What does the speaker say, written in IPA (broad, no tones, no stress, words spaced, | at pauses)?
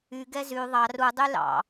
y ɡɛzy ðˤɑ ru dˤylɑ̰